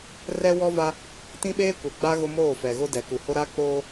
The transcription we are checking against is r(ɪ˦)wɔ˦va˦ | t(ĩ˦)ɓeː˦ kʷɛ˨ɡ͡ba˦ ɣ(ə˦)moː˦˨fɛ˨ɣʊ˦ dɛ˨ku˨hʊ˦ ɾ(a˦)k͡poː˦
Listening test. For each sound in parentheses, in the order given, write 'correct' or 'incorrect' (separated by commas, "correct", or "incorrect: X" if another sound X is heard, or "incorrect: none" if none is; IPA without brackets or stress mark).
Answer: incorrect: ɛ˦, correct, incorrect: ʊ˦, correct